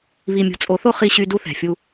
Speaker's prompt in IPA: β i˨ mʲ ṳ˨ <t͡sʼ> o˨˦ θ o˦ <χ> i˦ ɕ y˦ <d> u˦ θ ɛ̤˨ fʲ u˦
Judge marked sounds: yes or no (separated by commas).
yes, yes, yes